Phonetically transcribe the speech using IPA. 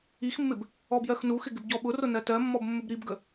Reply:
ixmːɪb | ɔbjɜxnuxɪ ɡɪbɟɔɓʊrʊ nɜtɜmːɔb mːʊbɾibɡə

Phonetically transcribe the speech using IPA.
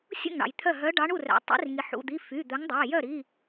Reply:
sʲṵ˥˩ŋɳɑ̰˩j t̪ʰœ˥˩ ɦœ˨˦ɖɑ˨˦ɳ u˥˩ræ̰˩ tˤḭ˨˦rŋi˩ ħṵ˩˧˩d̪i˩˧˩ fy˩˧˩d̪œ˨˦ŋdˤæ˩˧˩ jœ˥˩ɾi˩˧˩

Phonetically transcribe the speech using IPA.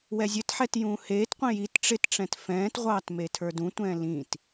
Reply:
wɛzʲɘtħɛt jũːheːtqʷĩ jit ʈ͡ʂɪtʈ͡ʂɛ̃t fɛ̃ːtʁʷɑːt metʰə˞dũtʷɛ̃ː lĩt

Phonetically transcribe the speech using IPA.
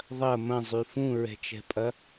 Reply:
ðˤɐ mɐ̃zˤy fũɹɛ̤t͡ʃɛ̤pʼɐ

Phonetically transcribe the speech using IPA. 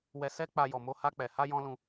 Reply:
wɛ˧sɛ˦k͡pa˧ jɔ˨mo˧ha˧k͡pɛ˨ ha˧jɔ̃˧ lũ˧

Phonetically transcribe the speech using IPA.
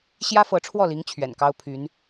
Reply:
ɕjä˥fɤ˧˥ʈ͡ʂʰwɔ˥˩li˧˥ŋ t͡ɕʰɥɛ̰˨˩nkɑ˥ʊ̯ pʰy˧˥n

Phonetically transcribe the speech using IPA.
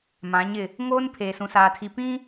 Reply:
mã˨˦ɲɪ˦˨ | ŋoː˦n pʰeː˨sũ˨saː˨tʰi˨ pĩ˦

